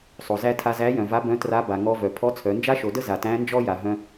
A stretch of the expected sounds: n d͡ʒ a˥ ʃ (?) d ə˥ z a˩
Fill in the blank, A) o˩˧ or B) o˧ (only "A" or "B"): A